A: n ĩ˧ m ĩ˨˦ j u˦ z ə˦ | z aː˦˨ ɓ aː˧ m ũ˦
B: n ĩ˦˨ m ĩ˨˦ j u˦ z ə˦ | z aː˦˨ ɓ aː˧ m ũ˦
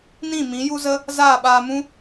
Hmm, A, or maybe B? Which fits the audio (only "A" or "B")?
B